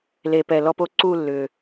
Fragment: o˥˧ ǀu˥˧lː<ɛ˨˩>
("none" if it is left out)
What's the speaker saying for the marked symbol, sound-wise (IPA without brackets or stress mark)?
ʏ˨˩